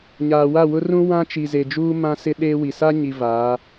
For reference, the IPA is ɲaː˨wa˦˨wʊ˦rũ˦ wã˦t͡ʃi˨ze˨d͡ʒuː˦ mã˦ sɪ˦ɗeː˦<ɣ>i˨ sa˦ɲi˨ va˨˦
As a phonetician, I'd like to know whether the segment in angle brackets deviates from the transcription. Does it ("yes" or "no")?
yes